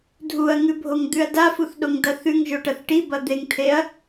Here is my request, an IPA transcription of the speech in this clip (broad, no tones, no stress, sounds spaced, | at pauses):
dʱ u ɐ̯ ŋ ʉ bʱ o ŋ d̪ ʉ ɐ̯ d a f u θ ɗ o ŋ d ɐ θ ʉ ŋ ʒ o ʈ ɐ θ ʈ i b ɐ d̪ e ŋ t̪ʰ e ɐ̯